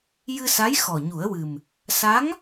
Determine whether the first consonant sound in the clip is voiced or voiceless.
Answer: voiced